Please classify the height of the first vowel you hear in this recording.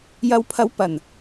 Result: low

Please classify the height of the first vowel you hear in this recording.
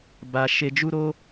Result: low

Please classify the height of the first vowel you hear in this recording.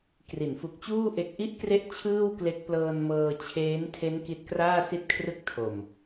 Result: high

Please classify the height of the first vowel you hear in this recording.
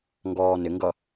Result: mid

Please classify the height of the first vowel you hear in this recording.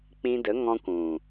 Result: high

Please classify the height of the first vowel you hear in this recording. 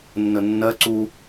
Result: mid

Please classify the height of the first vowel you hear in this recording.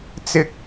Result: high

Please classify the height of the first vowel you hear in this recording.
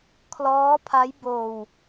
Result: mid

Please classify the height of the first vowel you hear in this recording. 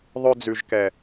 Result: mid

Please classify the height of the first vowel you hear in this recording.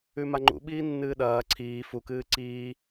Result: high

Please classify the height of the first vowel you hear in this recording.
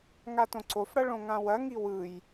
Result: low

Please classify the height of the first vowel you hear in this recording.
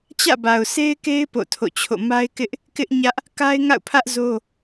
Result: low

